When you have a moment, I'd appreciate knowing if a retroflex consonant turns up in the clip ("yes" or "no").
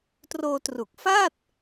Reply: no